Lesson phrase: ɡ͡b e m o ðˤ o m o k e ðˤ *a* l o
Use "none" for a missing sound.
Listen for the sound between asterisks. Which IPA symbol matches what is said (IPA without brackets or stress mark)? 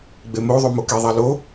a